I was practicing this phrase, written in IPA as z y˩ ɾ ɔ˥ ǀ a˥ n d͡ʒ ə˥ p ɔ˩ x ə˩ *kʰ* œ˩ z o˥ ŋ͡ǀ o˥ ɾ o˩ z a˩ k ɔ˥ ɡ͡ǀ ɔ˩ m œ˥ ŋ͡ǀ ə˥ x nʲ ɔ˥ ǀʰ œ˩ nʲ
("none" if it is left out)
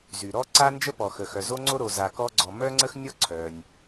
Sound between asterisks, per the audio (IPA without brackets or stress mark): x